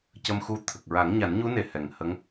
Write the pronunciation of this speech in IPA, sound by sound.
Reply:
c ə˧ m x u˧ t̪ʰ ə˨˩ k̚ ɹ a˨˩˦ ŋ ɲ a˨˩˦ n ɲ u˧˥ n e˨˩ h ɛ˨˩ ŋ h ə˧˥ ŋ

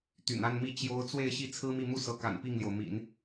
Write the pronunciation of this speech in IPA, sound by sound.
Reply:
t̪ y̰˨˩ n a˥˧ n m i˥˩ t͡ɕ j o˥ ʊ̯ t͡s w e˥˧ ɪ̯ ɕ i˥˩ t͡sʰ ɹ̩˥ m i˥˧ m u˥˩ s ɤ˧˥ k a̰˨˩ n p i˥˩ ŋ l j o˩ ʊ̯ m ḭ˨˩˦ n

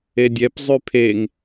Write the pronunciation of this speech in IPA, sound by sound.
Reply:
e dʲ ɛ p zˤ y pʰ e ŋ

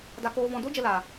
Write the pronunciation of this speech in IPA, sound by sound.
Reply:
d a˧ k oː˧ v ɔ̃˧ d o˦ d͡ʒ ə˧ l aː˨

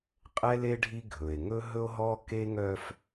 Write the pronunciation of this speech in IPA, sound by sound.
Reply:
qʼ ɛ˦ l e˦ ɖʱ i˦ ɡʱ ɵ˨ e̯ ŋ ɵ˦ ɦ ɵ˦ o̯ ɦ ɔ˦ k e˦ ŋ œ˦ f

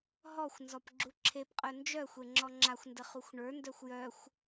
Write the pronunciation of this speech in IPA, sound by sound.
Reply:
ɦ ɔ xʷ n z ɔ p ɡ͡ǁ u ǁʰ e p qʼ œ n d͡ʒ œ xʷ e ŋ͡ǁ ɔ ŋ͡ǁ a xʷ n d ə χ u xʷ ɳ ə˞ n d œ xʷ j œ xʷ

